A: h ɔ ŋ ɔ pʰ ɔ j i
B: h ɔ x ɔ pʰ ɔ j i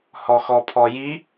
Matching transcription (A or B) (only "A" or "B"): B